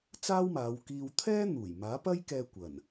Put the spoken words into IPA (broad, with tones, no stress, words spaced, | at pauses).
t͡saː˥wmaː˨˧wkiː˧w t̪ʰɛː˥ n̪uː˨˩j maː˨˥pɐ˥j kɛː˧ kʷɐ˨˩n